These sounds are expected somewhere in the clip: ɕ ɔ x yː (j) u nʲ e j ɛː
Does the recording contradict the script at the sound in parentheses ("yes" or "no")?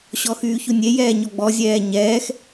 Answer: yes